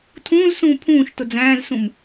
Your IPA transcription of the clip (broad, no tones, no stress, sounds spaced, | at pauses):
tʰ ũː z s ũː pʰ ũː ʃ t ʊ d͡z æ̃ː z s ũ m